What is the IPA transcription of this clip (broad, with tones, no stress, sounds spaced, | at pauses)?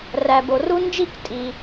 r æ˩ b o˩ r u˦ n d͡ʒ i˥˩ k tʼ i˩